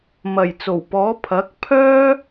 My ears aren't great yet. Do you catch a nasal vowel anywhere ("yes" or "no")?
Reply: no